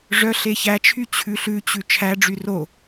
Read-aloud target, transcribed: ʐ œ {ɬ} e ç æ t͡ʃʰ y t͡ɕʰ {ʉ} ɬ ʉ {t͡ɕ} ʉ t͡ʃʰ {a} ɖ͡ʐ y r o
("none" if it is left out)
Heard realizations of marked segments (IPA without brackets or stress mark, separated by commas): ɬ, ʉ, t͡ɕ, æ